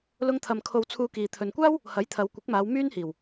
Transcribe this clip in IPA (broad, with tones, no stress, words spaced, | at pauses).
lʊ˧ŋt̪ʰɐ˨m kʰo˧wt͡sʰuː˧kiː˨ t̪ʰɵ˨nkʷaː˥w | hɐ˨˥jt̪ʰɐ˨˧wkʷɪ˨˥k̚maː˨˧w myː˥nhiː˨˩w